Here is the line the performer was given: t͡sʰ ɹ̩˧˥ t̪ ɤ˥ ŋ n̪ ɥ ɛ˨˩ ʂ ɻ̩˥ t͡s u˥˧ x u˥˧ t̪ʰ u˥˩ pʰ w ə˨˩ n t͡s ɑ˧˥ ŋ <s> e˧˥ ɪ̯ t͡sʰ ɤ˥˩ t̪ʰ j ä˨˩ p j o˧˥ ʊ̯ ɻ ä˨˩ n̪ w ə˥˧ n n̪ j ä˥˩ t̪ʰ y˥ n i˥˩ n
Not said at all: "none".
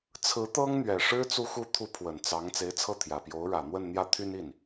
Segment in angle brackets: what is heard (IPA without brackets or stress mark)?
t͡s